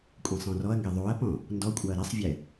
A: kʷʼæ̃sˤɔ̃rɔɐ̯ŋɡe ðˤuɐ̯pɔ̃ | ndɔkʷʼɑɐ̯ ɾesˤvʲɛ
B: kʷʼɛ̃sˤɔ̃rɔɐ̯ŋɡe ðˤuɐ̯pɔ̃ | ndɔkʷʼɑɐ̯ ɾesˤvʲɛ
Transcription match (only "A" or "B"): B